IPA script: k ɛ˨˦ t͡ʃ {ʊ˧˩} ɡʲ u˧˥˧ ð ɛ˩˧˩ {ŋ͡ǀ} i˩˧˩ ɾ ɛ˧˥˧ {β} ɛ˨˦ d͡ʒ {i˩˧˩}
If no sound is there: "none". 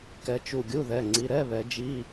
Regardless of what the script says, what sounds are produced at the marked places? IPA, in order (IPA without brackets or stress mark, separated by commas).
u˧˩, ŋ͡ǀ, β, i˧˥˧